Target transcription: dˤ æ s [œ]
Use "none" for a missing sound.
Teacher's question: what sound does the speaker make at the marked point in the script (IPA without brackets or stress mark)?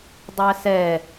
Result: ɛ